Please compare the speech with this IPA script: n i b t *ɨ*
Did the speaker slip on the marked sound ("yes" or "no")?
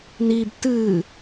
no